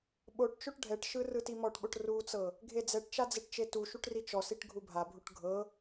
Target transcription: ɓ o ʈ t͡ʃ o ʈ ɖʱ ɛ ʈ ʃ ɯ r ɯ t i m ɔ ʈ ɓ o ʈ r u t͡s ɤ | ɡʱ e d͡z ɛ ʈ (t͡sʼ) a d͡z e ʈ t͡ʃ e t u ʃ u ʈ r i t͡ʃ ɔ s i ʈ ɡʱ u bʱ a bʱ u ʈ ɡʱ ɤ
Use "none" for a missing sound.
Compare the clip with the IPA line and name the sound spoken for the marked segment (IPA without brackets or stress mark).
t͡ʃ